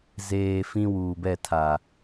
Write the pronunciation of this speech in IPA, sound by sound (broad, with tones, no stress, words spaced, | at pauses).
zeː˨ fĩ˦wuː˨ bɛ˦˨tʰa˨